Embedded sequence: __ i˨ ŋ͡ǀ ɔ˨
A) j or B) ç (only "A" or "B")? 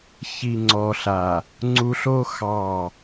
B